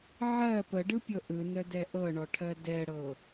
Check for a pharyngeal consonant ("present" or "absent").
present